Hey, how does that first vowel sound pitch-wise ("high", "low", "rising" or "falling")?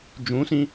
rising